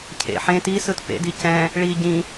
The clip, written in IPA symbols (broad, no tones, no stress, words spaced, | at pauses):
cʰḛ ħẽ tisɯt pḛdi cɛ̃ | ɭi ɟĩ